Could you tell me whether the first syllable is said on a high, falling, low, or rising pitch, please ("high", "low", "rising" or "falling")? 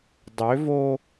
rising